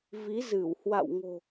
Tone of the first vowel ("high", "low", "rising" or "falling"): rising